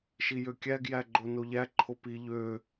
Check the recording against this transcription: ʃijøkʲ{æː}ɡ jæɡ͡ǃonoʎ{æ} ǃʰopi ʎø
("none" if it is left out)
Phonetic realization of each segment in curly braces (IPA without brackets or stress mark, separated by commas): æ, æ